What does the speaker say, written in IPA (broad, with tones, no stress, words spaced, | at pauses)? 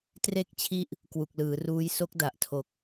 tre˦˥k̚t͡ɕʰi˦˥ʔ | kwu˨˩k̚lɯː˩˦ruː˦˥j so˦˥k̚da˨˩ʔtʰo˨˩k̚